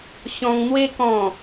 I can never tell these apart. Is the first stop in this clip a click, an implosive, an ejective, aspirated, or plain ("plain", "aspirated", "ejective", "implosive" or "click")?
plain